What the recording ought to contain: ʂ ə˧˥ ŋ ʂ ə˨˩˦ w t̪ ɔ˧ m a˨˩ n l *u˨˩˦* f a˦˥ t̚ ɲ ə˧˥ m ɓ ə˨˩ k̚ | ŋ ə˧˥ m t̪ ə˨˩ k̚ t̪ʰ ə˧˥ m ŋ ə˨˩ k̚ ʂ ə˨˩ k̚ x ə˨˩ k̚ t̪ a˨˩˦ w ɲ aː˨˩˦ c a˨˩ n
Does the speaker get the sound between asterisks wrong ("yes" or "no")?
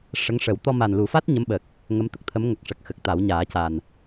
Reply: no